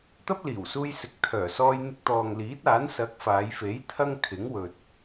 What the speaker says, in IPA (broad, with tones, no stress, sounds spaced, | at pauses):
t̪ ɐ˥ p̚ l iː˨˩ w s uː˧ j s ɪ˨ k̚ t̪ʰ œː˨˩ s ɔː˧ j n̪ ɪ˧ k̚ t̪ ɔː˨ ŋ l iː˨˥ t̚ aː˨˥ n s ɐ˨˥ k̚ f aː˨˧ j f e˨˥ j t̪ʰ ɐ˥ ŋ kʰ ɪ˨˥ ŋ w ɵ˨ t̚